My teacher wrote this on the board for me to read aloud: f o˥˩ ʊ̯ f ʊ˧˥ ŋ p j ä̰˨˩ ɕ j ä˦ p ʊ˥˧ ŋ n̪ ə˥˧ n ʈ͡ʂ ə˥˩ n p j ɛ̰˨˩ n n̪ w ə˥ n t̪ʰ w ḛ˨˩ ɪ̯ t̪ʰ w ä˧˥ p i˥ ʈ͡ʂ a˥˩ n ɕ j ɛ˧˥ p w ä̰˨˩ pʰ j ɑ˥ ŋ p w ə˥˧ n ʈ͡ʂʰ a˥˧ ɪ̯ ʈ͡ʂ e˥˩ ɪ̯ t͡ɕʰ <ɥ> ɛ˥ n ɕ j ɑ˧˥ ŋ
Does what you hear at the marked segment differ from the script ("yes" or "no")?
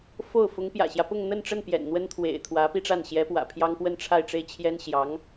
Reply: yes